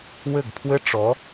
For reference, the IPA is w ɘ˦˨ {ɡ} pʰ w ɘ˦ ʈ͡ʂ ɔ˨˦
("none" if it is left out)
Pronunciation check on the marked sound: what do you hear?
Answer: ɡ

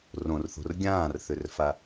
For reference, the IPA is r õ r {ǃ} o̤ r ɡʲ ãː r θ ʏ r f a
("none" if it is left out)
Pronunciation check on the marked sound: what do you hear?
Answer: θ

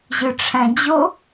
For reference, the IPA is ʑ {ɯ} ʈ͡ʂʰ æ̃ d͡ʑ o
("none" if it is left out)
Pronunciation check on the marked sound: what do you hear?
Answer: ɯ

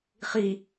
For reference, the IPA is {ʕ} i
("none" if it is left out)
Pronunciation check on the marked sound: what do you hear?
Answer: χ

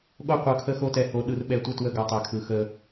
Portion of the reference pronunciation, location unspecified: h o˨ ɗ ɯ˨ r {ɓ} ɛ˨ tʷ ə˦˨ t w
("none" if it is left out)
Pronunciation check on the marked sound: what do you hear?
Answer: ɓ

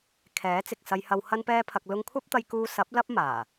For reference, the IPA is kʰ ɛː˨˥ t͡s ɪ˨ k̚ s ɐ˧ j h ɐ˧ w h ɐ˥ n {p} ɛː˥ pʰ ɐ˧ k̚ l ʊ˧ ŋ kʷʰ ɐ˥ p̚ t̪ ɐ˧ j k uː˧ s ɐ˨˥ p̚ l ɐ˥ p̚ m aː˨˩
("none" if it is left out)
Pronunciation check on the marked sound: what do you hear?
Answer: p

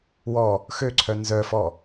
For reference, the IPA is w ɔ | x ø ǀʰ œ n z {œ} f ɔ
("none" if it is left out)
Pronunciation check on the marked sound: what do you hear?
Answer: œ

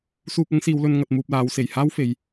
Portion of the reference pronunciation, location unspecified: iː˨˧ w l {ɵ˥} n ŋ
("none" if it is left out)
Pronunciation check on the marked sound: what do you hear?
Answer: ɵ˧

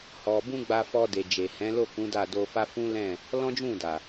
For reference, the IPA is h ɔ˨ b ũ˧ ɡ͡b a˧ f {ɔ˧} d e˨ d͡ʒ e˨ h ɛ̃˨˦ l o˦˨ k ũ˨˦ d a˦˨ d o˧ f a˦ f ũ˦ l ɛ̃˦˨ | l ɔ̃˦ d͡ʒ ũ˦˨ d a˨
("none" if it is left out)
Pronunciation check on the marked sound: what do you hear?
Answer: ɔ˧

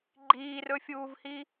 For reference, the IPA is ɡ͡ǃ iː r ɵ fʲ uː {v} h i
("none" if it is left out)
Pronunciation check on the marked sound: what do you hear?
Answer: v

